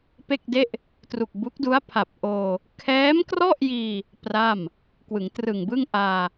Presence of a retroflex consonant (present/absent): absent